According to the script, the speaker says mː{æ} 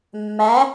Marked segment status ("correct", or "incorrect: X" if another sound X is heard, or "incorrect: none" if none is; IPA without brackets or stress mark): correct